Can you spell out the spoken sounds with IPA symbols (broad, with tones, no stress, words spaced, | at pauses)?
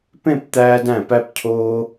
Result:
pẽ˥˧pt̪æː˧dæ̃˧˩pæ˧p cʰoː˧